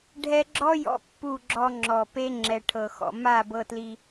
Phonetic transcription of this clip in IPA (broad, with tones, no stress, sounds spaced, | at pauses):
ɖʱ ɛ˦ ɡ͡ǁ ɔ˦ j ɔ̰˧ pː u˦˨ ɡ͡ǁ ɔ˧ ŋ͡ǁ ɔ˨ p e˦ ŋ͡ǁ ɛ˨ ʈʰ ɤ˨ x ɔ̰˨ m a˦˨ b ɤ˧ t l i˧